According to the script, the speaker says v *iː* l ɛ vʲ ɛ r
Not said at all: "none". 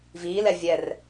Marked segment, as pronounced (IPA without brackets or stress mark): iː